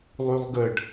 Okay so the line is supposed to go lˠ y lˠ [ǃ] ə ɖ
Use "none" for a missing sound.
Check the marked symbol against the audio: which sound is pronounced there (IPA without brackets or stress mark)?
ɡ